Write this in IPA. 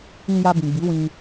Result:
ĩ˧ja˧bĩ˨ɡ͡bi˨˦ wĩ˧

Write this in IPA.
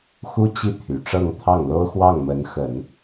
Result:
xu˥t͡ɕi˥˩ t̪ʰy˨˩ʈ͡ʂɤ˥˧ŋt̪ʰɑ˥˩ŋ lo˥ʊ̯xwɑ˥˩ŋmə˧˥n xə˨˩˦n

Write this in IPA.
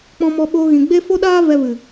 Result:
k͡pɔ̃˧mɔ˧ɓoː˧ ɣĩ˨ɡ͡be˦ fo˦ɗaː˦ vɛ˧vɨ˨

